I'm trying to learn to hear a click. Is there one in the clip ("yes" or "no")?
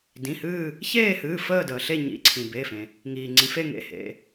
yes